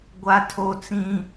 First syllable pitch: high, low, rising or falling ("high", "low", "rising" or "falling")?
high